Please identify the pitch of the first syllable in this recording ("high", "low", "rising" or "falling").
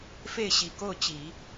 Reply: falling